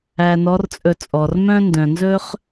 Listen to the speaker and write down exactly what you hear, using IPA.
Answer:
æ˧ n ɔ˧˥ r t͡sʼ ɵ˧ t͡sʼ ɔ˩ r m œ̃˥ n d œ̃˩ n z ɵː˥ χ

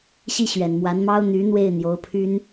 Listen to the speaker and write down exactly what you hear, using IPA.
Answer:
ɕ i˥˩ ɕ ɥ ɛ˨˩ n m w a˧˥ n m ɑ˥ ʊ̯ n̪ y˧˥ n̪ w e˥˩ ɪ̯ n̪ j o˧˥ ʊ̯ pʰ y˥ n

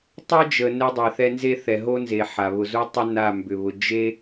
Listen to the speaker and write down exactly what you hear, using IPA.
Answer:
tˤ e˦ d͡ʒ ə˨ n ɛ˦ dˤ e˨ θ ɛ˦ n z e˦ θ ɛ˨ ɦ o˦ n z e˨ ħ a˨ β ʊ˨ z u˦ tˤ ʏ˦ n a˦˨ m b ʏ˨ β ʊ˨ d͡ʒ e˦

